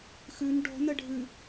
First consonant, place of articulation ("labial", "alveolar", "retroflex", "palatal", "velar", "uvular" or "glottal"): velar